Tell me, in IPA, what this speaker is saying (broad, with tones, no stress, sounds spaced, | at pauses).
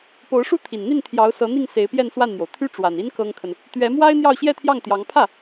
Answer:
p o˧˥ ʊ̯ ʂ u˥ t̪ʰ i˨˩ n n̪ i˥˩ n t̪ʰ j ɑ˧˥ ʊ̯ s ɤ˧˥ n̪ i˥˩ ŋ s e˧˥ ɪ̯ p j ɛ˥˧ n s w a˥˩ n n̪ j o˩ ʊ̯ t̪ʰ y˥ ʈ͡ʂ w a˨˩ n i˥ n k ɤ˥ ŋ kʰ ə˨ n | t̪ ɥ ɛ˧˥ m w a˥ ɪ̯ n̪ j ɑ˥˧ ʊ̯ ɕ j ɛ˥˧ t̪ʰ j ɑ˥˩ ŋ t̪ j ɑ˧˥ ŋ pʰ ä˥˩